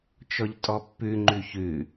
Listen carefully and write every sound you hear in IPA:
t͡ʃ ɔ ʎ tʼ ɔ pː ʉ ŋ͡ǃ ʉ ç ʉ

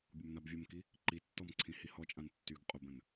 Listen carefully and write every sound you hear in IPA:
bʲ ʊ m n a b vʲ ə m k i | ǃ i tː ɔ m ǀʰ ĩ h i h ɔ t͡ʃʼ ã n tː y ɡ qʼ ʊ b ə̃ n

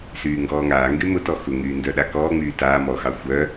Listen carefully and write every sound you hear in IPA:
s yː ŋ ɡ ɔː ŋ aː ŋ ɡ y m ʊ t ɔ x ʊ ŋ yː n d œ ɗ a k ɔː ŋ͡m yː t aː m ɔ x ɑ xʷ œ

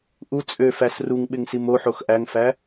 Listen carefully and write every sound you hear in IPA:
ʔ u t͡sʼ ø f æ s r u ŋ ɓ ɪ ŋ s i m o ħ o x ʔ æ ŋ f æ

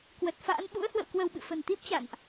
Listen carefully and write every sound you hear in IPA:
k w ə˨˩ t̚ f a̰ː˧˥ n ɓ ṵ˧˥ ə̯ h w ə̰˧˨ w k w ə˧˩ w ɓ ɨ̰˧˨ f ə̤˨˩ n t̪ i˦˥ p̚ t͡ɕ a̰˧˨ n ʔ

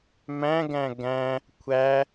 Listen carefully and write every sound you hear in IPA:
m æ̃ ɡ æ̃ ɡ æ̃ | kʷʰ æ

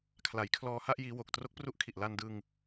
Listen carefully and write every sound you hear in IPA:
kʰ l a˩˦ j kʰ l ɔː˧ h a˥˩ ʔ j iː˦˥ w o˨˩ k̚ t r o˦˥ k̚ p r u˦˥ ʔ kʰ i˨˩ ʔ l a˧ n d ɯ˧ ŋ

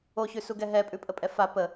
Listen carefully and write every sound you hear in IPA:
o ç ʉ s u ɡ ɛ ɦ ɛ pʼ ʉ pʼ ə pʼ ɛ f a p ə

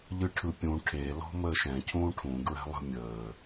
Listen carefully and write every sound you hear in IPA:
ʎ ɯ ʈʰ ɯ pʲ ũ ʈʰ e l ɔ̤ m əː ʃ ɛ̃ cʰ ũː ʈʰ ũ ɡ ɹ ɛ̤ lˠ ə̤ mʲ əː

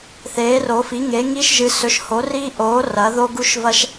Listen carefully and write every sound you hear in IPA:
θ eː˨˥ r o˨˥ f i˨˥ ŋ e˨˥ ŋ i˥ ʃ ʒ ɨ˨˥ s ɵ˨˥ ʃ h o˨˥ r i˥ ʔ oː˨˥ r ɐ˨˥ ð o˥ ɡ u˥ ʃ v ɐ˥ ʃ

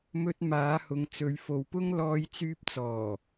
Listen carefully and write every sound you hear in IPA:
m ɵ˧ t̚ m aː˨˧ h ʊ˨ ŋ t͡s ɵ˨˧ ɥ f o˨ w p ʊ˥ ŋ l ɔː˧ j t͡s yː˧ p̚ t͡s ɔː˨˩

